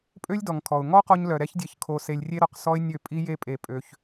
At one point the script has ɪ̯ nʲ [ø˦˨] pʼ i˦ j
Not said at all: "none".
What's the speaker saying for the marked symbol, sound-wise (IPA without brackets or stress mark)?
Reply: ø˦˨